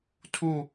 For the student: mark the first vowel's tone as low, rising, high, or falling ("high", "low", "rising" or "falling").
falling